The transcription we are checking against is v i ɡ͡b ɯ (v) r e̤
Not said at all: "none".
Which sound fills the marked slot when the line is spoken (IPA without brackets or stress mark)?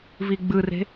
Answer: none